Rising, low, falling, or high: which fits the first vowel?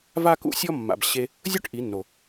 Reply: high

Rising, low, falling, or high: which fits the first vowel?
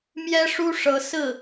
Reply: high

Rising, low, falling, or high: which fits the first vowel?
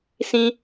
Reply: high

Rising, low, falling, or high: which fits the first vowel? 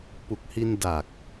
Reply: low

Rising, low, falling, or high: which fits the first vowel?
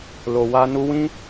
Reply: low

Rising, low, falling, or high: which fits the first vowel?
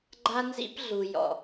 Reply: high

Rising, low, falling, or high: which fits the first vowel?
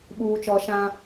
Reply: high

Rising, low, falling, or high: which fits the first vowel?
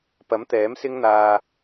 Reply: rising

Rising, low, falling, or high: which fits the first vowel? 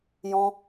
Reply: high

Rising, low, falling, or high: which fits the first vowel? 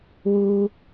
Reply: low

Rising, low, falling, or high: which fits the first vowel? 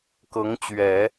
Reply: rising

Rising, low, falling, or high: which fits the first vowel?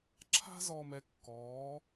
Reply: high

